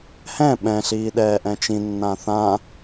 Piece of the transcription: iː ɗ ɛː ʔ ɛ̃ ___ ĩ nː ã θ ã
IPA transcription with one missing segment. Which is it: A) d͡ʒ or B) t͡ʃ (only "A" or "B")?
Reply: B